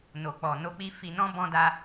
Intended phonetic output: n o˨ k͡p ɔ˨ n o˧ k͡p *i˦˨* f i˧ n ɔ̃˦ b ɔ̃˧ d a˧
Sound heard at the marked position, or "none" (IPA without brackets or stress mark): i˧